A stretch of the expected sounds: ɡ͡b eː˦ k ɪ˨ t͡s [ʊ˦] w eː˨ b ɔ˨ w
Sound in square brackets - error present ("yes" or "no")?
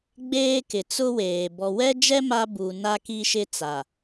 no